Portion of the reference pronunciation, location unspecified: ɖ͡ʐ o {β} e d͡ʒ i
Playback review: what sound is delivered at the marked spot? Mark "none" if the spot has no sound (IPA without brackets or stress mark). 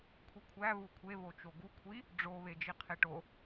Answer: β